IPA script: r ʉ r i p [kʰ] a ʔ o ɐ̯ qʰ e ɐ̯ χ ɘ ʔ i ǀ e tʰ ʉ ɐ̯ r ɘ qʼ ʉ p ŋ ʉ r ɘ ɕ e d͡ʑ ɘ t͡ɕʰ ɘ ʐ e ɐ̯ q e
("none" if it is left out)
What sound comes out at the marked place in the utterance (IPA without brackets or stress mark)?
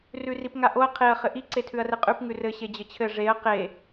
ŋ